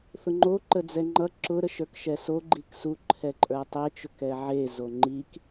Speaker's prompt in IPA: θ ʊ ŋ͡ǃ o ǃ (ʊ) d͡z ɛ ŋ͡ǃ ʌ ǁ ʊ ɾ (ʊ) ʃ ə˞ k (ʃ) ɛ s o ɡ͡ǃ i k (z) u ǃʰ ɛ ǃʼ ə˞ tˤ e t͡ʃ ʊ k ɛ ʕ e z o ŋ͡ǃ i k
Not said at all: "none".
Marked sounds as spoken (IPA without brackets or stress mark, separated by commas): ə, ə, ʃ, s